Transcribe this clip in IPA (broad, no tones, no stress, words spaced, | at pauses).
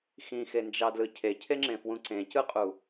xĩxend͡ʒɑdlɯ cʰecʰeŋ͡ǁẽfwũ ǀẽcɯqʼu